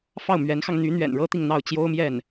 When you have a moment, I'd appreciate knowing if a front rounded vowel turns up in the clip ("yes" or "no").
yes